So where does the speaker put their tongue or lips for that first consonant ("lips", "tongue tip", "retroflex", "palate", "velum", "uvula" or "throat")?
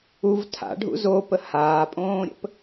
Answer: lips